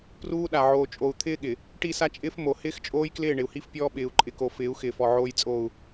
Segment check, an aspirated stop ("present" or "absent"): present